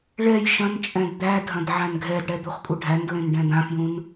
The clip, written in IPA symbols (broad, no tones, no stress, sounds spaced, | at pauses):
ɭ ɛ j ʃ ɐ̃ n t͡ʃʼ ɛ̃ d d̪ æ dʱ ɐ̃ d ʕ æ̃ n ɡʱ ɛ d ɽ ɛ d̪ u χ kʼ u ɖʱ æ n d ɹ ẽ n ɖ ɛ̃ d̪ ã f j ũ n